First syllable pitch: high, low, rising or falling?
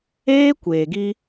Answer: high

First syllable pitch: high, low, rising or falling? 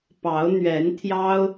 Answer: rising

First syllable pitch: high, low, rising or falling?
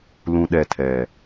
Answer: low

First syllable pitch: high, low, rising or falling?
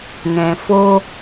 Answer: low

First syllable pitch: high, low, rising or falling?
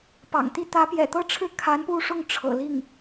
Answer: low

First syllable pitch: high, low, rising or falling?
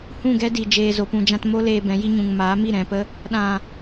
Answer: falling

